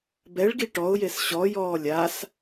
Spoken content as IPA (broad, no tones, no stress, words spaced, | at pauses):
bɛɭɡi ʈɔʊ̯jes ɕɔjɔː lʲas